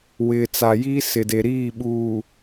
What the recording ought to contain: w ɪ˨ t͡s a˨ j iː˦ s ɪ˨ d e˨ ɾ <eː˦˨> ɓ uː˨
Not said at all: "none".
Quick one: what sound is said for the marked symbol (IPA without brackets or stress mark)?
iː˦˨